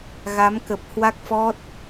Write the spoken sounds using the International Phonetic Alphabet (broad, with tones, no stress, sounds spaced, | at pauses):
ɣ a˨˦ m k ə˨˩ p̚ h w a˦˥ k̚ f ɔ˦˥ t̚